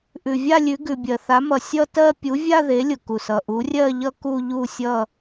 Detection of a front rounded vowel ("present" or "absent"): absent